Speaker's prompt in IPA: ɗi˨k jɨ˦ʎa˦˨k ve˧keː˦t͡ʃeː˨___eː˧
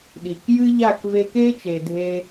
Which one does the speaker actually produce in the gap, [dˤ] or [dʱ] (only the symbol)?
dʱ